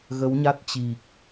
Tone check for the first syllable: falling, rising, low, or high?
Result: rising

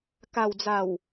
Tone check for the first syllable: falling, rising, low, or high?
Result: low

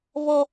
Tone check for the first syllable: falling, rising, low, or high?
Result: high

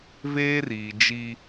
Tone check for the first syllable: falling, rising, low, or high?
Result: high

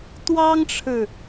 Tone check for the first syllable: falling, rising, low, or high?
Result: high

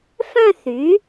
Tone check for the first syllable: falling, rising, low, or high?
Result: falling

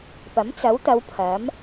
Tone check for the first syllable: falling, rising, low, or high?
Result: rising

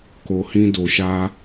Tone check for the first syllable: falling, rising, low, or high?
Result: low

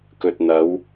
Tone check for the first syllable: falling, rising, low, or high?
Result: low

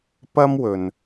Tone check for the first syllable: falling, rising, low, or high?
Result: high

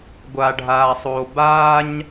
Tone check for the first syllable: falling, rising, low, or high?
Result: low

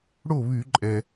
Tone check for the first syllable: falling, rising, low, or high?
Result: falling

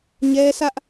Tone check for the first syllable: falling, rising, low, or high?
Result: high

